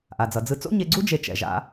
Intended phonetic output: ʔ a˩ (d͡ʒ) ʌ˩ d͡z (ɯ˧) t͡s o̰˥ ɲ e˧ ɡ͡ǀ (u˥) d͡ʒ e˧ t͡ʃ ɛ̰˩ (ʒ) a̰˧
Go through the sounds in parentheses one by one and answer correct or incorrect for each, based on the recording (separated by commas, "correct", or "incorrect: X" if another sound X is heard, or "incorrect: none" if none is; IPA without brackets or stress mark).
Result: incorrect: d͡z, correct, correct, correct